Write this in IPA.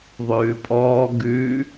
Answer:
ðˤ ʉː pʼ ɔː ɡ ʉ

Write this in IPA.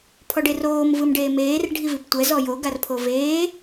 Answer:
pʰ ɔ ɖ e r oː m v ɯ m ɖ eː m eː r ɖʱ i v i p tʷ ɛ z ɔ j o ɡ a r pʰ o v eː

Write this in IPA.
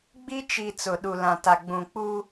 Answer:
ɡ͡b i˦ t͡ʃ i˨ t͡s ʊ˨ ɗ u˨ l ã˨ t a˨ ɡ͡b ũ˨ k͡p u˦

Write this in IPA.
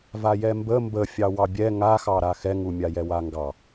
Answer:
v a j ɛ m b ə m b ə fʲ ɑ w ɑ bʲ ɛ ŋ a x ɑ ɾ a x ɛ ŋ u mʲ a j ɛ w a ŋ ɡ ɑ

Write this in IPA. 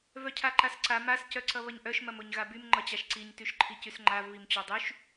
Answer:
v œ cʰ a ǃ a s ǀ a m a s c œ ǀ ʌ β ʌ ɲ ʔ œ ʃ m ɐ m o ɲ ɣ a b y m ŋ͡ǃ ʌ t͡ɕ a ʃ ǀ i ɲ t y ʃ ǃʰ i c y s ŋ͡ǃ a v β i m t͡ɕ o dˤ y ʃ

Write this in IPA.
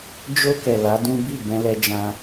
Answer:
d͡ʒ o˧ k ɛ˨ l a˨˦ d ũ˦ b i˦˨ b ɛ̃˧ l ɛ˧ d͡ʒ ã˧

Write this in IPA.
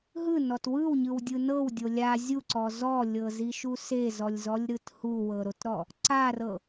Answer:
ɦ ɯ n ɔ t w ɯ w ɲ ɯ w dʲ ɯ n ɤ w dʲ o lʲ a zʲ u ǀ ɔ z ɔ lʲ ɤ z i ʃ u s e z ɔ lʲ z ɔ lʲ ɾ ɯ t h u w ɤ ɾ o t ɾ ɔ | ǀ a r ɤ

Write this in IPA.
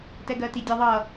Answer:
t ɛ ɡ ɜ t i dʲ ʌ ðˤ ʌ

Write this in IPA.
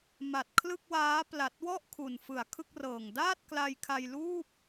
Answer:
m a˨˩ t̚ kʰ l ɯ˥˩ k̚ w aː˦˥ p l a˨˩ t̚ w ɔ˥˩ ʔ kʰ u˨˩ n f ɯ˨˩ a̯ kʰ ɯ˥˩ k̚ r ɤː˨˩ ŋ d aː˥˩ t̚ k l a˧ j kʰ a˧ j l uː˥˩ p̚

